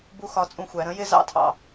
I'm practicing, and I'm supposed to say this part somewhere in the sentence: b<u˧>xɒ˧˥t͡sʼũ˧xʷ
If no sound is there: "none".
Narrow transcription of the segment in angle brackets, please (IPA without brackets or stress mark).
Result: u˥